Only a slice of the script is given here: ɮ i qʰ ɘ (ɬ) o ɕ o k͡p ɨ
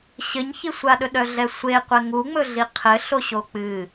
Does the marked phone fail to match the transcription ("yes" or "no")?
no